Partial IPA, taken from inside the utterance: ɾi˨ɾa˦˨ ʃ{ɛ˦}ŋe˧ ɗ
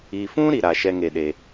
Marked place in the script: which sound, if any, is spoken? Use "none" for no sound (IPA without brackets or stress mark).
ɛ˦